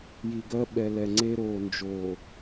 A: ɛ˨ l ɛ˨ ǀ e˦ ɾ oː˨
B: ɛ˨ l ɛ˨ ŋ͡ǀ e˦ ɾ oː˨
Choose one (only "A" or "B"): B